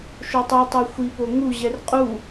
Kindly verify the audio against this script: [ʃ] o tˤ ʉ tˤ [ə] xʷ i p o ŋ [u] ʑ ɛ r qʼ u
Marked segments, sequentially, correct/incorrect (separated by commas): correct, incorrect, correct